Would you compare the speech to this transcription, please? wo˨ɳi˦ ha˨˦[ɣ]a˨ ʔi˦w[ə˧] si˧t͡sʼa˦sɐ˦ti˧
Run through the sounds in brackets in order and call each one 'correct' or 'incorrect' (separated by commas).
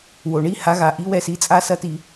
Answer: correct, incorrect